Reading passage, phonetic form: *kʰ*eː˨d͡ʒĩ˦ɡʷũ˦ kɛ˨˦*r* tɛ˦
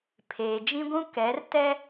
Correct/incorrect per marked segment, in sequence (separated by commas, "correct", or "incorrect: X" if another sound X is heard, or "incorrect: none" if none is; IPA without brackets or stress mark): incorrect: pʰ, correct